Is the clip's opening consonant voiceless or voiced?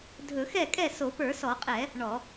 voiced